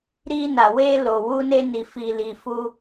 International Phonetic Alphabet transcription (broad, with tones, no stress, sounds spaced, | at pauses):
ɾ i˧ n a˨ w e˧ l o˨ w u˧ n e˧ n i˨ f i˨ l i˨ f u˧